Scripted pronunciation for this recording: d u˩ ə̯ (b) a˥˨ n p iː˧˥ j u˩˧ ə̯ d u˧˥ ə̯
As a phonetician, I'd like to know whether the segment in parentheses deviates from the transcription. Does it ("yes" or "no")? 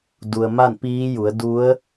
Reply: yes